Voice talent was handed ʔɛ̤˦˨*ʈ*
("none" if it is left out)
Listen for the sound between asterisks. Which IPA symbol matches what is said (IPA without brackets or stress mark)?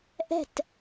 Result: t